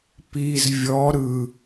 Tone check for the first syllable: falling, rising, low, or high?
low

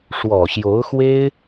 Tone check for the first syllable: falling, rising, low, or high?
low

